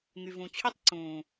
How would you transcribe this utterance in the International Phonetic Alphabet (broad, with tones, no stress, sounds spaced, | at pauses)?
ŋ y˨ v ũ˨ t͡ɕʰ y˦ tˤ ǀ ũː˨